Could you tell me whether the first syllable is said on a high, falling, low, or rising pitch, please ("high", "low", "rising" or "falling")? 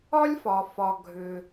high